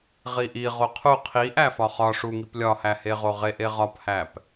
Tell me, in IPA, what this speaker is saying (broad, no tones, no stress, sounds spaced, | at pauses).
ʁ i ʔ i ʁ o qʰ u qʰ i ʔ æ f ɒ χ ɒ ʂ u ŋ i p lʲ ɒ h æ h e ʁ o ʁ e ʔ e ʁ ɒ p h æ p